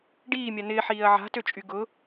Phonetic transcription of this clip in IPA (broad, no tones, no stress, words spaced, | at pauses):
ɖiːmʲa nɪːħiːɐ̯ ʕa̤tøt͡ʃʼy ɡʊ